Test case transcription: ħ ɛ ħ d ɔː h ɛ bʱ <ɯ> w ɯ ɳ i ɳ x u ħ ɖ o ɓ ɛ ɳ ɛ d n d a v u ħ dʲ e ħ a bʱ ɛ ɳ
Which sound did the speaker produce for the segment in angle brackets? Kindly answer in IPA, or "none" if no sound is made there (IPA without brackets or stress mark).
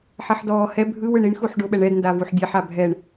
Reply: ɯ